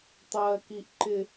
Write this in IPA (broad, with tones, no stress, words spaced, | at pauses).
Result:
tˤɜː˦ki˦ʔǃɪ˦